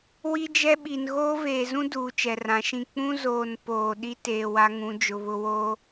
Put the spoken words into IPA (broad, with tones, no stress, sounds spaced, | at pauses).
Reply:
w i˦ d͡ʒ ɛ˦ ɓ i˨ n ɣ oː˦ v eː˨ z ũ˦ d uː˨ t͡ʃ ɛ˨ r ã˨˦ ʃ ĩ˦˨ k͡p ũ˦ z oː˨ n p oː˨ ɗ i˦ t eː˨ w a˦ ŋ ũ˨˦ d͡ʒ ʊ˨ β ʊ˦ w oː˦